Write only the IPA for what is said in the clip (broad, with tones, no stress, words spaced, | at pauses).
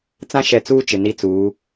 t͡sã˦ʃɛ˨t͡suː˦ t͡ʃɪ˨ni˦t͡suː˨˦